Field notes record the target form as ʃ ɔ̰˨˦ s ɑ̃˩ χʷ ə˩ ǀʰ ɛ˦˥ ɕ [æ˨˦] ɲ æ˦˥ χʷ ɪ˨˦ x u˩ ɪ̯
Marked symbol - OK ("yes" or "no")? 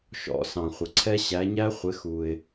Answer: yes